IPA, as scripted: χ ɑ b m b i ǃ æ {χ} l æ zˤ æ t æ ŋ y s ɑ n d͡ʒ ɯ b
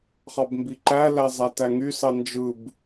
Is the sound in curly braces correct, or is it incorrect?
incorrect